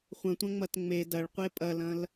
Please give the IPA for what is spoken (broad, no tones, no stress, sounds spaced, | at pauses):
χʷ ɐ̃ tʷ ɐ̃ ŋ͡m ɐ t ŋ͡m e d ɐ ɭ qʷ e pʼ ɐ l ɐ̃ l